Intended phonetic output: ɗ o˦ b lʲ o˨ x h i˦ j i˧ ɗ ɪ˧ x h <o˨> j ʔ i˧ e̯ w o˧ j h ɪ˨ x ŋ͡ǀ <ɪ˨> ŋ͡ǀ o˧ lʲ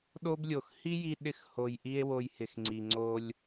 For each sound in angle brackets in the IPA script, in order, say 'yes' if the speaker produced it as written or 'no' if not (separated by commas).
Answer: yes, no